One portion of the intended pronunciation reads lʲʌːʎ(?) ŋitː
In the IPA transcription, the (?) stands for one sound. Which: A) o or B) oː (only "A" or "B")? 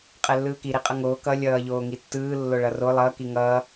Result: B